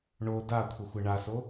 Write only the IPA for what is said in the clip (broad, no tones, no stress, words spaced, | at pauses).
ɳo dakʷʰəxʷɘ ɳaso